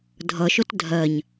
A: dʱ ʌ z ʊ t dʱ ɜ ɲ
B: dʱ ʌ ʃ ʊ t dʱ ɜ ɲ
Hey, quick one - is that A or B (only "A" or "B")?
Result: B